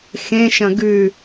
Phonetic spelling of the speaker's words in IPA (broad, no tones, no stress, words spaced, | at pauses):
xẽʃɐ̃ ɡʉ